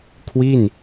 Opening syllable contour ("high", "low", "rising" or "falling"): falling